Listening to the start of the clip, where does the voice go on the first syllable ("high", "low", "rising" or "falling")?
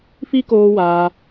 high